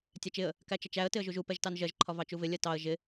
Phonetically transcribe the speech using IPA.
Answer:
tʲ æ t͡ʃ ɪ ə̯ | k æ t͡ʃ ʌ t͡ʃ æ ə̯ t ɪ ə̯ ʒ u ʒ u p ɛ ʒ t ɑ n ʒ ɜ ʒ ǃʰ ɒ v ɑ t͡ʃ u v ɪ lʲ ɜ t ɑ ə̯ ʒ ɪ

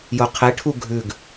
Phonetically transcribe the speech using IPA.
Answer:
j o qʰ e ʈʰ u ɡʱ ʉ ɡ

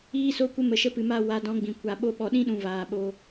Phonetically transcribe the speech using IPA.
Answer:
iː˧ s o˧ kʷ ə˧ m ə˨ ʃ ə˧ p ɨ˨ m a˦˨ w a˨˦ d ɔ̃˨˦ ɡ͡b ĩ˨ kʷ a˨ ɓ o˧ ɓ ɔ˨ ɗ ĩ˦ ɗ ũ˨ v aː˨ ɓ o˦

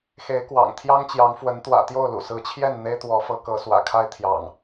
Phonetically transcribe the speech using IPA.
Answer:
x e˨˦ ɪ̯ k w ɑ̰˨˩ ŋ t̪ʰ j ɑ˦ ŋ t͡ɕ j ɑ˨˦ ŋ f w ə˨˦ n t̪ w ä̰˨˩ t̪ j o˥˨ ʊ̯ l ṵ˨˩ s ɹ̩˨˦ t͡ɕʰ j ɛ˥˨ n n̪ e˦ ɪ̯ t̪ w ɔ˨˦ f ɤ˨˦ k ɤ˨˦ s w ä̰˨˩ kʰ a˦ ɪ̯ t̪ʰ j ɑ̰˨˩ ŋ

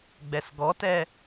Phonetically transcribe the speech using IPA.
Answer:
ɡ͡b ɛ s ɡ ɔ t ɛ

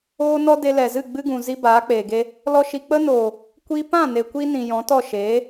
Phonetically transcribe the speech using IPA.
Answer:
oː˦ n ɔ˦ d e˧ l ɛ˨ z ɨ˦˨ ɡ͡b ɨ˦ ɡ ũ˨ z i˦ b aː˨˦ k͡p eː˨ ɡ e˦ | l ɔ˦ ʃ i˧ k͡p ə˧ n oː˨ | kʷ i˦ p ã˦˨ n e˨ kʷ i˧ n ĩ˨ j ɔ̃˨˦ t ɔ˦˨ ʃ eː˨˦

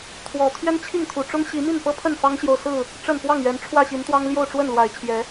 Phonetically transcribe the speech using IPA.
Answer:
t̪ʰ w ɔ˨˩ t̪ʰ ɥ ɛ˦ n t͡ɕʰ i˥˨ ŋ t̪ʰ u˨˩ ʈ͡ʂ ʊ˦ ŋ ɕ i˨˦ m i˥˨ n p ɤ˦ pʰ ə˥˨ n f ɑ˦ ŋ ɕ j o˨ ʊ̯ s ɹ̩˥˨ | ʈ͡ʂ ə˥˨ n p w ɑ˥˨ ŋ ɥ ɛ˨˦ n ʈ͡ʂʰ w ä˥˨ ɕ i˨˦ n t̪ w ɑ˦ ŋ l j o˥˨ ʊ̯ ʈ͡ʂ w ə˥˨ n l w a˨˩ ɪ̯ t͡ɕʰ j ɛ˨˦

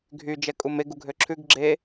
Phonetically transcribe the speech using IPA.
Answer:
ɡʱ y d͡ʒ ɛ kʼ u m e ɡ u ɡʱ ø ǁʰ ʉ ɡ ɡ͡ǁ e

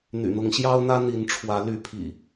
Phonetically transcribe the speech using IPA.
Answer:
n̪ y̰˨˩ n̪ ʊ˨˦ ŋ ɕ j ɑ˦ ʊ̯ n̪ ä˦ n̪ i˨˦ n ʈ͡ʂʰ w ä˨˦ l y˨˦ pʰ ḭ˨˩

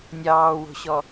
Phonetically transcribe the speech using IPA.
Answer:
nʲ ɑː w o̤ ɕ ɔ

